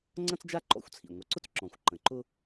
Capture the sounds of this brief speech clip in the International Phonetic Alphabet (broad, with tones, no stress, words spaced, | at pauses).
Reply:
ŋ͡ǀɐ̃˥t͡sd͡ʒa˥ ǃɔ̰˧˥xʷt͡sʰḭ˨˩ŋʷə˨˩ǀʊ˥t͡s ǁɔ̃˨˩xʷǃə̃˨˩ǃʊ˥